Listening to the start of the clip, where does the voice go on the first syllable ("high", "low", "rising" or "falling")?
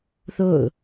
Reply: falling